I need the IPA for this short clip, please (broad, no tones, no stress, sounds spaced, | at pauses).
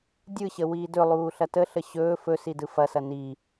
dʲ ɯ ɕ ə w iː d ɵ lˠ uː ɬ ɐ t ə ɬ ə ɕ ɵː f ɵ s i d ɯ f ɐ s ɐ n i